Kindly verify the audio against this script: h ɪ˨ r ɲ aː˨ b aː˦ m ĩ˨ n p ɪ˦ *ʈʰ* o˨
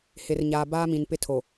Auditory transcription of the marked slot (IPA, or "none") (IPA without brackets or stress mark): tʰ